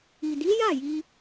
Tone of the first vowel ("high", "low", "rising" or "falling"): low